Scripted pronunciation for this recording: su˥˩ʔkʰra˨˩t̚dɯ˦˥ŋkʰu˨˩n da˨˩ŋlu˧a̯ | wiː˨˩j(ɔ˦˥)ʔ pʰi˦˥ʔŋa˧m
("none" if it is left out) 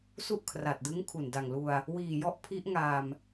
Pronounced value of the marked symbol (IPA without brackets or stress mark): ɔ˦˥